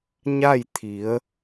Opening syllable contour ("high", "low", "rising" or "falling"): falling